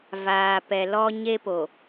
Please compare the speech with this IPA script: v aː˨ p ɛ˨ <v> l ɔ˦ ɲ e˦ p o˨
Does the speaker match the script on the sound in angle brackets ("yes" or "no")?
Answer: no